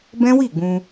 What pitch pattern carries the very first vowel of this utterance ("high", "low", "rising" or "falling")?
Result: high